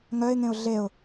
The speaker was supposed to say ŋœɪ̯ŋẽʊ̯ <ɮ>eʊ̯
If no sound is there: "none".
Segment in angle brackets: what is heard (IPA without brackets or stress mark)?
ɮ